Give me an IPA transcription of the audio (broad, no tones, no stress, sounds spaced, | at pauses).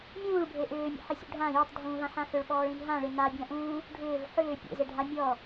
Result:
mʲ ũː ɭ bʱ e ʔ ʏː mʲ ḛ ħ ɪ sʲ ṵ ɖʱ ã j ʊ tˤ dʱ ũː v ã ħ ã x ʏ ɭ ɓ ɔː ɭ ĩ n ɦ ã ɭ ɪ n a bʲ ã ʔ ũː | ɖʱ ʏː v ħ ʏː pʲ ḛ z e ɖʱ a mʲ ɔ